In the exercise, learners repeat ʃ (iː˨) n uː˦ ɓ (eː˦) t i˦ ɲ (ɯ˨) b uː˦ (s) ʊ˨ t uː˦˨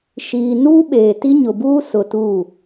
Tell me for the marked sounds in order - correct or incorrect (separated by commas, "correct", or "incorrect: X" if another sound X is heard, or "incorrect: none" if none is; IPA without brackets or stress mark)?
correct, incorrect: eː˨, incorrect: ʊ˨, correct